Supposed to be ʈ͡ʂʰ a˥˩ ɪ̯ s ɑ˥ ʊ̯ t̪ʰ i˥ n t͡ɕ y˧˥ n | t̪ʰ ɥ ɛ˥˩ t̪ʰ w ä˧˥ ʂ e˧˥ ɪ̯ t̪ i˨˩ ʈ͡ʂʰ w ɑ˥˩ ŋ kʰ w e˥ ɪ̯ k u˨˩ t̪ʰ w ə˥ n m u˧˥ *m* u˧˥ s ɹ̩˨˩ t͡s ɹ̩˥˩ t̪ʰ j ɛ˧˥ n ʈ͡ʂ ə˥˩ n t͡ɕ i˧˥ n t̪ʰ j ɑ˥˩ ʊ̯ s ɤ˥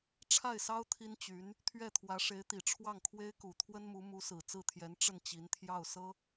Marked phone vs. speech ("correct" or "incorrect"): correct